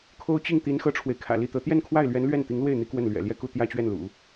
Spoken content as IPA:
kʰ o˥ ʊ̯ t͡ɕ i˥˩ ŋ t̪ i˧˥ n x ɤ˥ ʈ͡ʂʰ w e˨ ɪ̯ kʰ ä̰˨˩ l i˥˩ t̪ ɤ˧˥ t̪ j ɛ˥˧ n kʰ w a˥˩ ɪ̯ l ɥ ɛ˧˥ n l ɥ ɛ˥˩ n t̪ i˧˥ ŋ l w e˥˩ ɪ̯ n̪ i˥ k w ə˥˩ n l ɥ ɛ̰˨˩ l j ɛ˥˧ k u˥˧ t̪ j ä˥˧ t͡ɕ ɥ ɛ˥˩ n l ṵ˨˩˦

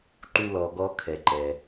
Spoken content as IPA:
ǃ u˦ l ɔ˧ ɡ ɔ˦ kʰ ɛ˧ ǃ ɛ˧

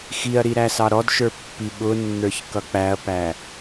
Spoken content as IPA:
x i ɐ̯ ɾ i ɾ æ s ɑ ɾ ɔ d ʃ ə˞ pː i ɓ ʊ nː ə˞ ç k ʌ k͡p æ ɐ̯ p æ

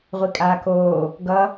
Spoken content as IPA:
ʁʷ i kʼ aː k oː | ɡ ʌ

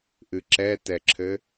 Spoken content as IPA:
ʔ ɨ ǁ ɛ t ɛ ǁʰ ɘ

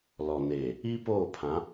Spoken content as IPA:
l ɔ˨ n eː˨ | i˦ p oː˦˨ pʰ ã˨˦

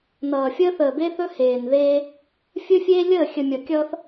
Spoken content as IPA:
n ʌː˨ fʲ əː˦ θ əː˨ b e˦ θ ɵ˦ h eː˨ n ð eː˦ | fʲ ɵ˦ fʲ eː˦ lʲ əː˦˨ xʲ ə˨ mʲ ʌ˨ kʲ ʌː˦ θ

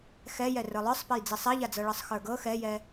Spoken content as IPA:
x ɛ j ɛ r ə˞ lˠ ə˞ sˤ p ɛ j d͡z i sˤ ɛ ʎ a d͡z ɤ ɭ ɯ sˤ x ə˞ ɡ ɤ x ɛ j ɛ

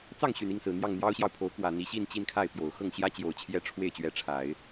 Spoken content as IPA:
t͡s ɑ˥˩ ŋ ɕ y˨˩ n i˥˩ ŋ s ɹ̩˨˩ n̪ j ɑ˥˩ ŋ n̪ j ɑ˥ ʊ̯ ɕ j ɑ˨ ʊ̯ pʰ o˧˥ ʊ̯ k w ä˨˩ n̪ i˧˥ ɕ i˥˧ n t͡ɕ i˥˧ n kʰ a˥˩ ɪ̯ p j o˨˩ ʊ̯ x ɤ˥˩ ŋ ɕ j ä˥ t͡ɕ j o˨˩ ʊ̯ t͡ɕʰ j ɛ˥˧ ʈ͡ʂʰ w e˥˩ ɪ̯ t͡ɕ ɥ ɛ˧˥ ʈ͡ʂʰ a˨˩˦ ɪ̯

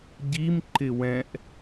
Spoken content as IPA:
ɟ i m ǃ ɪ w ɛ̃ ʔ

